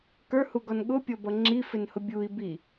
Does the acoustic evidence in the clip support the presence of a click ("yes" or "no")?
yes